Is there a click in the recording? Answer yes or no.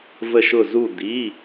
no